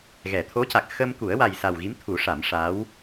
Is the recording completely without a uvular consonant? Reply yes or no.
yes